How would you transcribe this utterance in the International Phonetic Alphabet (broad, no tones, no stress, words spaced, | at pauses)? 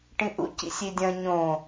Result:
ʈĩʔṵcḭsʲ idʲɐ̃ ɲõ